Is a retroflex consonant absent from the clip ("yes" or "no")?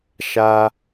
yes